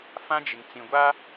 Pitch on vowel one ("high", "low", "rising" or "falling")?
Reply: high